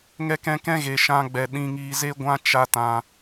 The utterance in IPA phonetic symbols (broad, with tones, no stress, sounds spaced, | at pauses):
ŋ ɛ˧ k ɛ̃˧ k ɛ̃˦ ɣ e˧ ʃ ã˦ ɡ͡b ɛ˧ ɗ ĩ˧ ŋ iː˧ z e˦ ɡʷ ã˦ t͡ʃ a˦ t ã˧